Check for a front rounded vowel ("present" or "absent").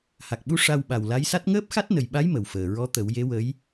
absent